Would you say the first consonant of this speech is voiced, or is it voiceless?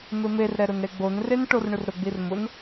voiced